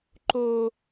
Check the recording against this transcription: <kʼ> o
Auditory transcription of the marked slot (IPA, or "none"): ǃ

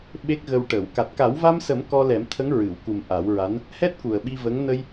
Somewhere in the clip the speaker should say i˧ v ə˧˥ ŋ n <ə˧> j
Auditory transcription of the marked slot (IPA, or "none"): ə˧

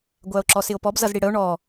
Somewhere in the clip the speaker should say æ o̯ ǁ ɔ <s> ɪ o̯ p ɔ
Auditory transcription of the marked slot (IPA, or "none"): s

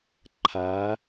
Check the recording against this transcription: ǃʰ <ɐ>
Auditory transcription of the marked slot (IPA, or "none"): a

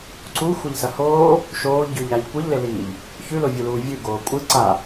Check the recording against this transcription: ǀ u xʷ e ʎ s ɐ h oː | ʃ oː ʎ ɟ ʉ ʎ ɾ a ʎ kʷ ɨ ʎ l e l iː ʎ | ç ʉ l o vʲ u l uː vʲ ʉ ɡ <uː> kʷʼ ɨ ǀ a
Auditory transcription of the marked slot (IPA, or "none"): oː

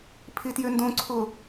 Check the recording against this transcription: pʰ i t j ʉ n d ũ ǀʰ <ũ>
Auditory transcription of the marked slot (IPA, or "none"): u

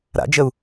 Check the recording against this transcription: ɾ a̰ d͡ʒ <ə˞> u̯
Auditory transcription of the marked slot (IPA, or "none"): ə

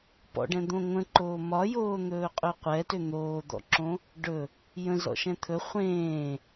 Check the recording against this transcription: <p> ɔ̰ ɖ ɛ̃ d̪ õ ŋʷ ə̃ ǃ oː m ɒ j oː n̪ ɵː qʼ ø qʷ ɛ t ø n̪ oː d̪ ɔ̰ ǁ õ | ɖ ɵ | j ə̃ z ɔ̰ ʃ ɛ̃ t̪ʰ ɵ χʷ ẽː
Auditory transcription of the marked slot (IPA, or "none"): p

